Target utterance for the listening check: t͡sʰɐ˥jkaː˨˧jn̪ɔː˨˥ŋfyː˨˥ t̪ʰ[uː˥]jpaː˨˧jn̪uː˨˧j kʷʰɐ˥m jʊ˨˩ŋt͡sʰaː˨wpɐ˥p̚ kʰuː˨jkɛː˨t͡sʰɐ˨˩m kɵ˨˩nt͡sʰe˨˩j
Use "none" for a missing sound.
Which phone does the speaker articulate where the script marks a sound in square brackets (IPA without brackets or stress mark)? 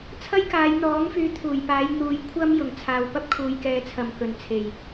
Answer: uː˨˩